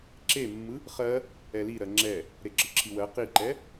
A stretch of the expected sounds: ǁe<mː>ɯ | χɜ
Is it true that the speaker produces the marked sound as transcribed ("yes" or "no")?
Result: yes